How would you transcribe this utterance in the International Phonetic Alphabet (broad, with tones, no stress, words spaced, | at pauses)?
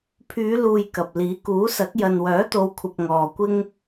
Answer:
pʰyː˨˧luː˨j kɐ˨p̚liː˨˥ kuː˨˥sɐ˨˥k̚ jɐ˨nwœː˨˥t̪o˨˧wkʷʰɐ˨p̚ ŋɔː˨kʷɪ˥ŋ